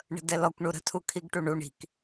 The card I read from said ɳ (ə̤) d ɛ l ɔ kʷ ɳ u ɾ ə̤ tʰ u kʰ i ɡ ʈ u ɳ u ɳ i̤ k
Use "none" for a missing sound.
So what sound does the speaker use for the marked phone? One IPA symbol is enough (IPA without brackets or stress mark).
ə̤